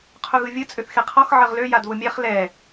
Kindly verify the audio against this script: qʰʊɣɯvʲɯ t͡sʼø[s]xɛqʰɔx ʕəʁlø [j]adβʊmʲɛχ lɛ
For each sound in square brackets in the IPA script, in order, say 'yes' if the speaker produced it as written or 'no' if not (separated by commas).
no, yes